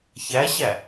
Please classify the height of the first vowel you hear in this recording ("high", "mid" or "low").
low